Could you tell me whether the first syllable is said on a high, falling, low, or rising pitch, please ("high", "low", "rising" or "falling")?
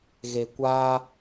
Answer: low